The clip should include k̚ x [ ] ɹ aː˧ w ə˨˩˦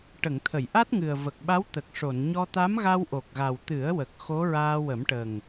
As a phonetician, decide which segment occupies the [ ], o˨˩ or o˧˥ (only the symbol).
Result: o˧˥